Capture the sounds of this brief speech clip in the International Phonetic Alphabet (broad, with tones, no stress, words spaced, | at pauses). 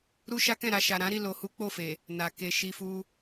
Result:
ɾu˦ʃa˦kɛ̃˦˨ɾa˧ ʃa˨ɾã˨˦ɾi˦˨ lo˨hu˨˦ k͡po˦˨fe˨ | na˨ ke˨ ʃi˧fu˦